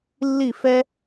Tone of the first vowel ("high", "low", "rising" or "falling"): falling